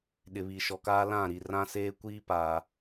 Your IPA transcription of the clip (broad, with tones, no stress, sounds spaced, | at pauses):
ɗ ɪ˨ β i˨ ʃ ɔ˨ k aː˦ l ã˦˨ ɾ i˨ r ã˦ s eː˦ kʷ iː˦ p aː˨